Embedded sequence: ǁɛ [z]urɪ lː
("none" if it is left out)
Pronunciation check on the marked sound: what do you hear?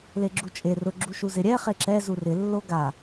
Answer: z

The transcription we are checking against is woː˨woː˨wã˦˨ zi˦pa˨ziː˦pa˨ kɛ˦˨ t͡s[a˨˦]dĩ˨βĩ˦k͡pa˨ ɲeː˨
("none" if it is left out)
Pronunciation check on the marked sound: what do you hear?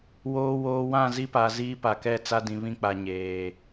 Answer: a˦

